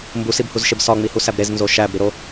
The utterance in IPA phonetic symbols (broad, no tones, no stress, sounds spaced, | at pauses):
m b u s i b h u z ʃ e b s ɒ ŋ͡m i h u s æ b ɾ e z n z o ʃ æ b ɾ i ɾ o